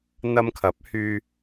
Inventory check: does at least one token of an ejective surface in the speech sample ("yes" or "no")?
no